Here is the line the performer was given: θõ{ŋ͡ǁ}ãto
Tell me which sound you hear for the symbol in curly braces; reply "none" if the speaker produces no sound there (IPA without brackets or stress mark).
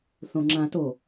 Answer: ŋ͡ǁ